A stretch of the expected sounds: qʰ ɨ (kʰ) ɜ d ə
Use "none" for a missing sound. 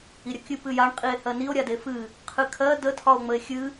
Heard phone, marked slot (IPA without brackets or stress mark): kʰ